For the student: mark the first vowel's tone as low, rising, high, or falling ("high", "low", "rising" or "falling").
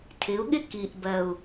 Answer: rising